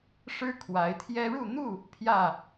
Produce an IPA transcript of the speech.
ʂ ɻ̩˦ kʰ w a˨˦ ɪ̯ t̪ʰ j ɛ˦ ɻ u˥˨ n̪ u˥˨ | pʰ j ä˥˨

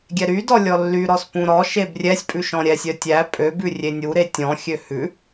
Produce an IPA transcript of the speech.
ɡʲ ɛ ɾ y d ɔ lʲ ɔ lː y ɾ ɔ s p ũ ɾ ɔ ʃ e b rʲ ɛ sʲ pʼ ʉ ʃ ɔ̃ ɾʲ ɛ sʲ œ tʲ æ pʼ ø b ʉ rʲ e nʲ u ɾ e tʲ ɔ̃ xʲ ø h ʉ

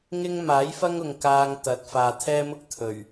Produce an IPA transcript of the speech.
ŋ ɪ˥ ŋ m aː˨˥ j f ɐ˥ ŋ ʊ˨ ŋ k aː˧ ŋ t̪ ɐ˨ t̚ f aː˨ t̪ʰ ɛː˥ m ʊ˥ k̚ t̪ʰ ɵ˨˩ ɥ

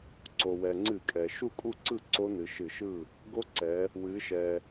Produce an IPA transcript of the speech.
ǀ o˩ w ɛ˩ ŋ͡ǀ ɨ˧˩˧ kʼ ɛ˩ ʃ u˥˩ kʼ u˥˩ ǀ ɯ˥˩ ǀ o˦˥ n ɨ˩˧ ʃ ɨ˧˩˧ ʃ ɯ˥˩ | ɡ o˦˥ ǀ ɛ˩˧ | w ɨ˩˧ ʃ ɛ˩

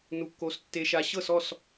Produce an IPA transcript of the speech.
n u˧ kː o˧ s tː e˧ ʃ a˧ ɕ ɤ˦˨ s ɔ˦˨ s

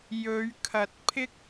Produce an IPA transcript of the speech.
j ɵ˨˧ ɥ kʰ ɐ˨˥ t̚ pʰ ɪ˥ k̚

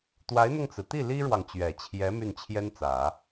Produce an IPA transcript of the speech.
t̪ w a˧˥ ɪ̯ n̪ ʊ˧ ŋ t͡s ɹ̩˩ t̪ i˥˩ l i˥ ɻ w ɑ˨ ŋ t͡ɕ ɥ ɛ˨˩ t͡ɕʰ j ɛ˧˥ m y˥˩ n t͡ɕʰ j ɛ˥ n t͡s ä˨˩˦

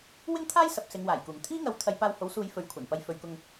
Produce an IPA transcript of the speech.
w ɪ˥ ŋ t̪ʰ aː˥ j s ɐ˨ p̚ s ɪ˨˧ ŋ w aː˨˩ j k uː˨˩ ŋ t̪ʰ iː˥ ŋ ɐ˨˥ w t̪ʰ ɐ˨˧ j p aː˧ w h o˨˥ w s uː˨˧ j f ɵ˨˥ ɥ kʷʰ ɐ˨˩ n p ɐ˧ j f ɵ˨ ɥ k ʊ˧ ŋ

